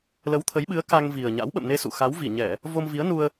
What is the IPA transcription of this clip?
lə˨˦wt̪ʰə˨˦jɓɨ˨˦ə̯ ka˧ŋvi˨˩ə̯ɲa̰˧˥w ɓə̰˧˨mne˧ sṵ˧˨xa˨˦wvi˧˩ ɲɛ˧˩˨ | vo˧mvi˨˦ə̯ nu˧ə̯

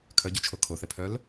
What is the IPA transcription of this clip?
kʰœɟʉt͡ʃʰo kʰoθɛ pʰœl

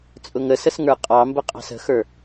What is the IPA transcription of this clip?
t͡sʼʊŋəsəs ŋə˞qʼɑmbə qʼɑ̤sə̤xə˞

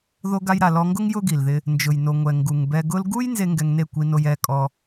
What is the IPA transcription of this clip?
ðo˧ɡa˧jɾa˨ lɔ˧ŋɡʊ˦ŋ jʊ˦ɡi˨lðɪ˧ | nd͡ʒʊ˨jno˨ŋʷɛ˨ ŋɡu˨ŋbɛ˧ ɡʊ˧lɡu˦j nze˦ŋɡɛ˧ŋne˦˨ kʷi˧no˧j ɛ˧kʼɔ˧

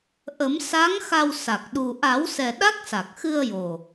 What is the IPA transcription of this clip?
ʔə˨˩˦m sa˧˥ŋ xa˧wsa˨˩k̚ ɗu˨˩ʔa˨˩˦wsɛ˨˩ ɗa˦˥k̚sa˨˩k̚ xɨ˧ə̯ jo˨˩

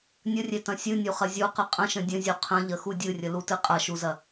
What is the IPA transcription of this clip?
nʲərʲetɐ̃ sʲɨnʲuχɐ zʲuqə qʼə̃ʃə̃ dʲə̃zʲu qʰə̃ʎəxu dʲɨrʲəlutɨ qʼɐʃuzɐ

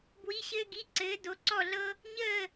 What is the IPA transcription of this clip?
bwi˧˥˧ɕɘː˥ɡi˧˥˧ ǀɘː˨˥ do˨˥ǀɔ˥˨ɮɤ˥ | ɲəː˥˨

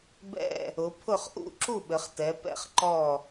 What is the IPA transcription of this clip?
bɛ̰˥˨ | ʊ˩˧ pʰʊ˥˨χʔṵ˥˨ ǁu˥˨ɓɘ˩˧χtɛ˩˧ pɛ̰˥˨χ ǃɔ˥˨

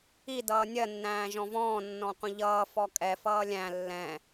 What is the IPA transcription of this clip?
i dʌːnʲɜ nːæ̃ːʒɔ̃vɔ̃ː nːɔ̃qʷə̃ʎʌː fɔkʼɛ fʌːlʲæ̃ lːɛ̃

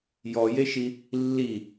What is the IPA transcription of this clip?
jɔjeʃi | lːi

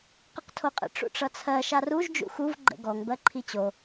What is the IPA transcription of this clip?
qʌqtʰoqʼə̰ ʈ͡ʂṵʈ͡ʂʌt͡sʰɜ ʃaruʒ d͡ʒṵxuv ɡ͡ǃə̰ɡɔŋ bɜǃʰit͡ɕo

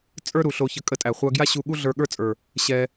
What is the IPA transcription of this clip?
t͡sʼə˞˥ ɾu˩ɬo˧çə˧ kʼə˧tʼæ˩χʷa˧ɡja˥ ɕu˧ɠu˥ ɮə˞˧ɠə˞˥t͡sʼə˞˩ | ɕɛ˧

